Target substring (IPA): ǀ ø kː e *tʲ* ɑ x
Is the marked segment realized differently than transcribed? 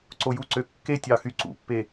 no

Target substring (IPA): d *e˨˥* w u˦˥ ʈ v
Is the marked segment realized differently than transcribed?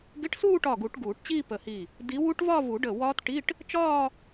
yes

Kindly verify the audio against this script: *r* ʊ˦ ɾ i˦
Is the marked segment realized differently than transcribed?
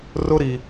no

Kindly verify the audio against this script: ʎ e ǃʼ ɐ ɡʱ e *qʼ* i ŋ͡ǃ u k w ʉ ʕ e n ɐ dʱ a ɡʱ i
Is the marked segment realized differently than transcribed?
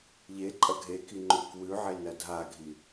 yes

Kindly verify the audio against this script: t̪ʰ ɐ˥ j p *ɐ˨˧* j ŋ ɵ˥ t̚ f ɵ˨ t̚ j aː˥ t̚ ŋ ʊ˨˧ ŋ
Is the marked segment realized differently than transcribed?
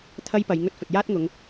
no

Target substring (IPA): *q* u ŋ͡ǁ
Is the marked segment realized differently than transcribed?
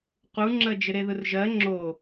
no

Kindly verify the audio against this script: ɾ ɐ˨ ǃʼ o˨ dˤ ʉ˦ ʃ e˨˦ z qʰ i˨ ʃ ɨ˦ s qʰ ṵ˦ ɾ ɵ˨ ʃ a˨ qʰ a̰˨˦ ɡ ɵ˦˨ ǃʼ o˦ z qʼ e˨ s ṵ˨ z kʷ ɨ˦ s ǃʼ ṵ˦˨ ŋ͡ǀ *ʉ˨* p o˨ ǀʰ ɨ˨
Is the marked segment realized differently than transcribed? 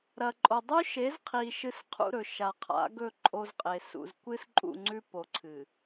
yes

